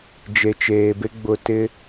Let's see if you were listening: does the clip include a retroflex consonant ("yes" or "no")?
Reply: no